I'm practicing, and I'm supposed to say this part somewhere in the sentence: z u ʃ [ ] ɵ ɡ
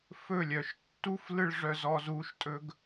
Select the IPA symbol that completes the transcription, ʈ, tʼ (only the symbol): tʼ